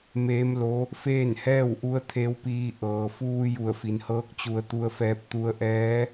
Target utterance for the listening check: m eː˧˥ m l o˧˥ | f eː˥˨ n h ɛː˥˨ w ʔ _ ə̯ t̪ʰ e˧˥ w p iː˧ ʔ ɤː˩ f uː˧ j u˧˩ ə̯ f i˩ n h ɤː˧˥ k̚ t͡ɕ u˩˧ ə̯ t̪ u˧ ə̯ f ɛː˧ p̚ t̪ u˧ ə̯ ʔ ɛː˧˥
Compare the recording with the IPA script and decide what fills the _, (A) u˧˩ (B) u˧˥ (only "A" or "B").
B